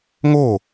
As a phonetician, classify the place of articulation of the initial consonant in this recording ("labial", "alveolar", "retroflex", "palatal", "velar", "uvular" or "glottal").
velar